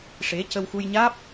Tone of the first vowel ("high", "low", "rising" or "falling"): rising